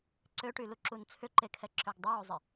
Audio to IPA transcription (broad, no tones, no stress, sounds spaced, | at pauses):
ǀ ø ʈ y l u ǁ u n t͡sʰ ʏ ǃ e kʰ ɛ ǁ ø ɡ dˤ u w u zˤ ɪ